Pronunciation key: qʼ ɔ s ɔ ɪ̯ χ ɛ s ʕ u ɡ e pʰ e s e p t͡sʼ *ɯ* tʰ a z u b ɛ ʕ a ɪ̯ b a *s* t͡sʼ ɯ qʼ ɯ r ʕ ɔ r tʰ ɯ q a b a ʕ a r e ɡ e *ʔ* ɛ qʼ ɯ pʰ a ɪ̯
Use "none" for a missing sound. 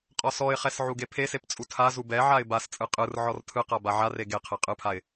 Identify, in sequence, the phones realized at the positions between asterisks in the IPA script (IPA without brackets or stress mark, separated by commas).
u, s, qʰ